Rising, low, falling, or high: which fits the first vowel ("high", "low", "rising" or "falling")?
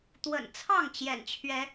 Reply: low